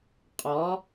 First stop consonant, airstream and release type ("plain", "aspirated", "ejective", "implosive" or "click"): ejective